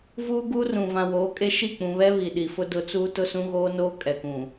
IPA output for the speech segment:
v uː˦ ɡ uː˦ r ũ˨ v ã˨ w oː˨˦ kʼ e˦ ʃ i˦˨ k͡p ũ˨ β ɛ˦ β i˨ ɗ i˨ f ʊ˦ d ʊ˨ t͡s uː˦ t ʊ˦ s ũ˦ ɣ oː˦ n oː˦ kʼ ɛ˨ k ũ˨

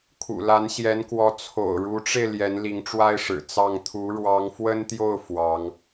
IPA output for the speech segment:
kʰ ṵ˨˩ l a˧˥ n ɕ j ɛ˧˥ n k w ɔ˧˥ t͡sʰ o̰˨˩ ʊ̯ ɻ u˧˥ ʈ͡ʂ e˧ ɪ̯ l j ɛ˧˥ n l i˧˥ ŋ ʈ͡ʂ w a˥ ɪ̯ ʂ ɻ̩˨˩ t͡s ɑ˥˩ ŋ t̪ʰ u˧˥ ɻ w ɑ˧˥ ŋ f w ə˥ n t̪ j o˥˩ ʊ̯ f w ɑ˧˥ ŋ

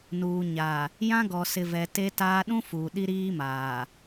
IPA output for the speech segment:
n uː˨ ɲ a˨ | j ã˦ ɡ ɔ˨ s ɪ˨ v ɛ˨ t e˦ t aː˦ ɗ ũ˦ f uː˨ ɗ i˦ ɾ iː˦ m aː˨

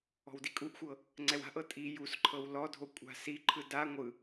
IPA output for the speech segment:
ɔ̤ w d i kʼ u ʔ xʷ ɤ | ŋ͡ǀ ɛ w a̤ ʔ ɤ tʼ i j u s ǃʰ ɤ w l ɔ dʱ o kʷʼ a̤ s i ǃʰ ɯ d a ŋʷ ɯ

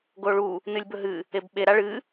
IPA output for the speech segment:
ɡ o ɭ u | n ɨ lʲ b ɵ ɦ ɨ | e b ɓ e ɾ a ɭ ɨ

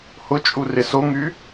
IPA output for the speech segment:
h ʊ t͡ʃʼ u r ɪ s o ŋ y

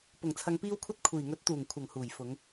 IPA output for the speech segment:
p ʊ˨˩ ŋ t͡sʰ ɐ˨ ŋ p iː˧ w kʷʰ ɐ˧ t̚ kʷʰ iː˨˩ ŋ ɵ˨˥ t̚ t̪ uː˨˩ ŋ kʷʰ ɐ˨˩ ŋ h uː˨˩ j f ʊ˨˧ ŋ

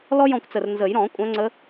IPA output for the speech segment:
l ɔ˥ j ɔ̃˦˨ kʷ t͡s ə˨˩ r n z ə˨˩˦ j ɾ ɔ̃˨˩˦ kʷʼ œ̃˨˦ ŋ͡ǀ ə˨˦

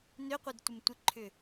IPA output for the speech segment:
n ø qʷ e d tʷ ɪ m tʷ ɪ ǃʰ ʏ

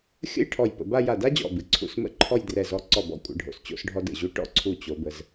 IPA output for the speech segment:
xʲ ə̰˥˧ j ʈʰ ɔ˧˩ j p ə̰˩˧ b a˥˧ j a˧˩ d a˥ d͡ʑ ɔ̰˧˩ b ɨ˩˧ ǀʰ ṵ˧˩ s m ə̰˥˧ ǃʰ ɔ˥˧ j d r ɛ˧˩ z ɔ˧ ǀ ɔ˧˩ b ɔ̰˧˩ kʷʼ ə̰˩˧ ɖʱ o̰˧˩ s t͡ɕ o̰˥˧ s ɖʱ ɔ˧ d ə̰˧˩ ʑ u˧ ʈ ɔ̰˥˧ ǀʰ u˧˩ t͡ɕ o˩˧ b ə˩˧ z

